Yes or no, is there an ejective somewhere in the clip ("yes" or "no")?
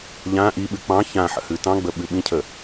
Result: no